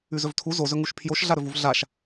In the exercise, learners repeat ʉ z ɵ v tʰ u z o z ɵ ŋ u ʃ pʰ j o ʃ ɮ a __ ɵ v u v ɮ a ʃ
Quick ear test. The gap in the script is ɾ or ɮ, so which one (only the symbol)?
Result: ɾ